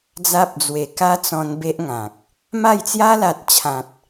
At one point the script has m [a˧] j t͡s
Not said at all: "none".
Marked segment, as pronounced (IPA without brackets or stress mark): a˥˧